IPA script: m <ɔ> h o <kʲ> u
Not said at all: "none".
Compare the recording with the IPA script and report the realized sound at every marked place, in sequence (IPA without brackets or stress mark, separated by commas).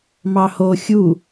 ɑ, xʲ